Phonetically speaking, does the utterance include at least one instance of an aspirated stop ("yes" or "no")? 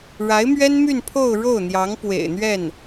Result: yes